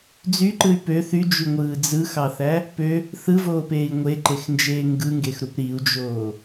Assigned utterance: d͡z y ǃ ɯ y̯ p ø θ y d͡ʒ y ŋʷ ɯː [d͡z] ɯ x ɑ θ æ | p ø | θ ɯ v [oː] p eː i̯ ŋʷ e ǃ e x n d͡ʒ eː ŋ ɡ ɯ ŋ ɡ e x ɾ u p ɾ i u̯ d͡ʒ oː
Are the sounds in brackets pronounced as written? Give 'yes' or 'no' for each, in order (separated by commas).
yes, yes